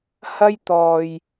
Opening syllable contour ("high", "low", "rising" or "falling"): high